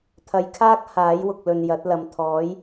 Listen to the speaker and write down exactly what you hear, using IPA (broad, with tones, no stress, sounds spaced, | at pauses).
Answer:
t̪ʰ ɐ˨˧ j kʰ aː˥ k̚ h aː˨˥ j w ʊ˨ k̚ l ɵ˨ n j ɐ˨˥ t̚ l ɐ˨ m t̪ʰ ɔː˨˥ j